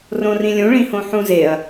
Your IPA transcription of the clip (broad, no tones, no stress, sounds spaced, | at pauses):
r õ r ĩ lʲ ũ ɭ ĩ h õ ħ ũ z e ɐ̯